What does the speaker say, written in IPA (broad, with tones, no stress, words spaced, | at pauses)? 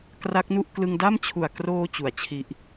kra˦˥k̚nu˥˩ʔ klɯ˧ŋda˥˩mt͡ɕʰu˨˩a̯ kroː˧ t͡ɕu˩˦a̯t͡ɕʰi˦˥ʔ